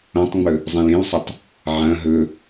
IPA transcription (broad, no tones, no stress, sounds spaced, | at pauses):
õ tˤ ŋ͡m ɵ | zˤ ĩ l ĩ l sˤ ɐ tˤ | ʕ ɐ̃ ɦ ɵ